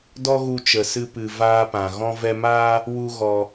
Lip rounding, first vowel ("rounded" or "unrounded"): rounded